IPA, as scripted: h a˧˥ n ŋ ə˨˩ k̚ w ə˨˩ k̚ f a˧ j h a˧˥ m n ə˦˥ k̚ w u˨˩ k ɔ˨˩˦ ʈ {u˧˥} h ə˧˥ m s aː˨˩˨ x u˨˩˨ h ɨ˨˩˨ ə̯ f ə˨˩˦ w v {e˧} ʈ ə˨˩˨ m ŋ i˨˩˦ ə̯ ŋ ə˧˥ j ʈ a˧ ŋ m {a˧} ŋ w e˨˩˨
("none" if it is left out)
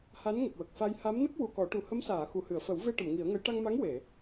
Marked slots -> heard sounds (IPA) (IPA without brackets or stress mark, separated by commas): u˨˩, e˧, a˧˥